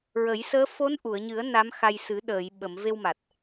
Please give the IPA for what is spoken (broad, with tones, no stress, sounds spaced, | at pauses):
ɹ ə˨˩˦ j s əː˧˥ f o˧˥ n ʔ u˨˩˨ ə̯ ɲ ɨ˨˩˦ ə̯ n a˧˥ m x a˧ j s ɨ˨˩˦ ɗ əː˨˩˨ j ɓ ə˨˩˨ m v e˧ w m a˨˩ t̚